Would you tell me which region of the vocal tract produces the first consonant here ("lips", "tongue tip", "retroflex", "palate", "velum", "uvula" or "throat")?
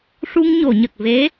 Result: retroflex